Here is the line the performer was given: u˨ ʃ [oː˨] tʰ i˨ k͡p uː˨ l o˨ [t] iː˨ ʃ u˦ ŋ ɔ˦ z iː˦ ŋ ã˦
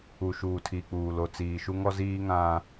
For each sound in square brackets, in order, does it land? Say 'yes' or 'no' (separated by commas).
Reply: no, no